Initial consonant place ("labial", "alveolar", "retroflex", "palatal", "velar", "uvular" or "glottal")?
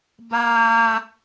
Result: labial